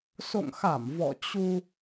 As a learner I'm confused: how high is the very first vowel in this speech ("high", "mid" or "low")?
mid